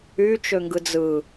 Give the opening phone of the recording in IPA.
y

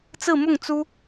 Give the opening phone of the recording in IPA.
t͡s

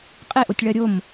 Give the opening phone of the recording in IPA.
qʼ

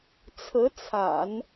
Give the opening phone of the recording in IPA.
t͡sʰ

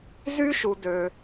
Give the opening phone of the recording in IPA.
z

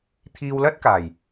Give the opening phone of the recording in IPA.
t̪ʰ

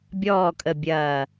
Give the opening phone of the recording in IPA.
bʲ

